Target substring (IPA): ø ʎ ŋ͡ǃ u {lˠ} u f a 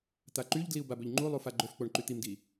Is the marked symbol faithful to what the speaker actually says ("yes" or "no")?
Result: yes